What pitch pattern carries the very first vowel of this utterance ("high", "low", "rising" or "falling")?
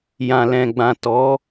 low